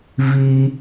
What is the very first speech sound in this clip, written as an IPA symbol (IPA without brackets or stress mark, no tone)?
v